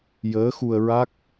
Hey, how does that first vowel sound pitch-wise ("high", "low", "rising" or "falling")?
rising